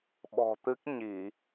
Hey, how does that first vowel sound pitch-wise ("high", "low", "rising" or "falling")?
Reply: low